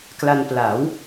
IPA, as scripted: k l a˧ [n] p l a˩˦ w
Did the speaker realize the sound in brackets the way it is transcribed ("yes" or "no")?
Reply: yes